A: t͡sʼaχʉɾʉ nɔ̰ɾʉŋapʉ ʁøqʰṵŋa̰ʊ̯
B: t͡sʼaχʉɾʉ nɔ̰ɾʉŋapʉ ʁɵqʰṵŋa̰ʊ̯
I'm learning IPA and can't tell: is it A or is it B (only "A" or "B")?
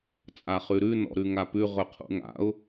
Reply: B